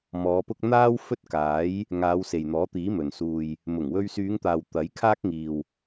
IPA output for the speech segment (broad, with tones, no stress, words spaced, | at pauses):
mɔː˨˧pʊ˥k̚ n̪aː˥w fɵ˥t̚kaː˨˥j | ŋaː˨˧wse˨jn̪ɔː˨˥t̪iː˨˥ mɵ˨n suː˨j | mʊ˨˩ŋwɵ˧ɥsyː˨˧ŋt̪aː˨w t̪ɐ˨˥jkʰaː˥k̚ŋiː˨w